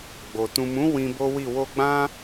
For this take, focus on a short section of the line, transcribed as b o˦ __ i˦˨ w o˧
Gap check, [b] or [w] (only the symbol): w